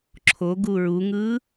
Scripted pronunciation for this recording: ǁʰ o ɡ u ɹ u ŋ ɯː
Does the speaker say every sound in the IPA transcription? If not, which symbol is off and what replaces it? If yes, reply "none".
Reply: none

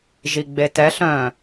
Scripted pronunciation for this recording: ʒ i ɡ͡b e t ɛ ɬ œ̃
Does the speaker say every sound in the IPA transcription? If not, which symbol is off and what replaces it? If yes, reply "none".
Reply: none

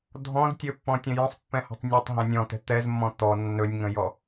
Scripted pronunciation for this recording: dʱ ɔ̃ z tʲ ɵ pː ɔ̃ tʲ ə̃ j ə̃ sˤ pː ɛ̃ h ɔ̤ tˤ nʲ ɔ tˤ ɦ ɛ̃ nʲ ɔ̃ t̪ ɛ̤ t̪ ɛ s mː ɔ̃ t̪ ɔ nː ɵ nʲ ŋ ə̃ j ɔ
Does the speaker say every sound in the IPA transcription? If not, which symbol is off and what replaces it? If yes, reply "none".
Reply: s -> z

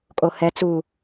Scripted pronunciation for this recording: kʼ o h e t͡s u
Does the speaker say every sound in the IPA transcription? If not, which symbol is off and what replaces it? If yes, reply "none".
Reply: e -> ɛ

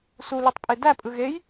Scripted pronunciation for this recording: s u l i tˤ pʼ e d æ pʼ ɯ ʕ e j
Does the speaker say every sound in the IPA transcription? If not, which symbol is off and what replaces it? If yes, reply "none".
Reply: ʕ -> ɣ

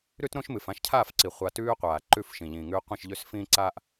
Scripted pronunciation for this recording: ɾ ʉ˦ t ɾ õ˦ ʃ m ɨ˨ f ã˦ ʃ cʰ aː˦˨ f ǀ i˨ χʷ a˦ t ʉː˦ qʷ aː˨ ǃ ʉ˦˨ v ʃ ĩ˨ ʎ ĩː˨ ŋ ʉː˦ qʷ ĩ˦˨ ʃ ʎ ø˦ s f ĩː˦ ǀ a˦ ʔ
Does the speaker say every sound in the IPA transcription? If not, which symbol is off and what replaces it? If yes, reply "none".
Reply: v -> f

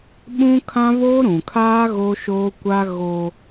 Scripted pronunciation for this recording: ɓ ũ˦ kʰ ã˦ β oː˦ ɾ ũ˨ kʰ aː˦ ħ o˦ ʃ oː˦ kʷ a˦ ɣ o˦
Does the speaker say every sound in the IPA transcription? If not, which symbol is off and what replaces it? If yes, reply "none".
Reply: ħ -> ɣ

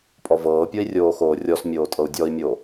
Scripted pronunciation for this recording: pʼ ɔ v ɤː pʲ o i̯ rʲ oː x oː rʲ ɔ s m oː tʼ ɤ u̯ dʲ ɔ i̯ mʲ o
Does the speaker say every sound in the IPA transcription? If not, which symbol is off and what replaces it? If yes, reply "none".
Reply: m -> mʲ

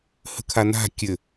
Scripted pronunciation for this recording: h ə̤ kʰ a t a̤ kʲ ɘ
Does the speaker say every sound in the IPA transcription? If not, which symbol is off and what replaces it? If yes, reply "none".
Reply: t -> n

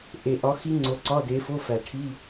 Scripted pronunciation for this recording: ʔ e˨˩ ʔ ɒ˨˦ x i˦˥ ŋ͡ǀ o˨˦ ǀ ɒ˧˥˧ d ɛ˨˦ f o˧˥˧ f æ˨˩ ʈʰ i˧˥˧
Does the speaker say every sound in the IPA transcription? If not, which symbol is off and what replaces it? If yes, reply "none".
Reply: ɛ˨˦ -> e˨˦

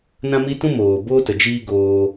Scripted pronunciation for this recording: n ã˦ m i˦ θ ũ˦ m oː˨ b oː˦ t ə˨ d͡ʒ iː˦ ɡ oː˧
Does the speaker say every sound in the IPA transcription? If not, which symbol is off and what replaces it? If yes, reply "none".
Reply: θ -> t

